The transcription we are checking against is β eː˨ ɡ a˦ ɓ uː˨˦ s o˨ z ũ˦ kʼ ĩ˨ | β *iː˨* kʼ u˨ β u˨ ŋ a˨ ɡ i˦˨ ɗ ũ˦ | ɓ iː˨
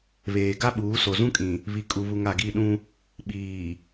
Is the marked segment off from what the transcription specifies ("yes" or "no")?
yes